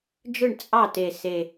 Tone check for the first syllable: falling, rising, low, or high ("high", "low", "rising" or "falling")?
falling